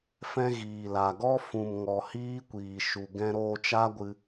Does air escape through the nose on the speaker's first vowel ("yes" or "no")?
yes